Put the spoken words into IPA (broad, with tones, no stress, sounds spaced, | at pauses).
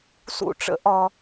s ṵ˦ ʈ͡ʂ ə̰˦ ʔ ɒ˦